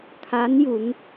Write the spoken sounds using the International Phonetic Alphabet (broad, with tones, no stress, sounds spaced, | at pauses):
kʰ a˧˥ n j u˩˧ ŋ